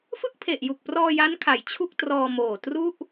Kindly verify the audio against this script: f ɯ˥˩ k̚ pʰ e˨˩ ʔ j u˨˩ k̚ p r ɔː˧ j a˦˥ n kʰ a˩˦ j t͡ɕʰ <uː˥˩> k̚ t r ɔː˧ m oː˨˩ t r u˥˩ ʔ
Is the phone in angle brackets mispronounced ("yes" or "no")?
yes